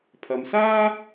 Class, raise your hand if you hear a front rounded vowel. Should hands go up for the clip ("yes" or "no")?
no